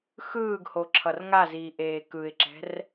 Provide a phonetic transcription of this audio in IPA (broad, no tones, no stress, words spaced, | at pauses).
xɯːɡho ǁʰʌrŋaziː ʔeːkɯɪ̯ǁɛ̤r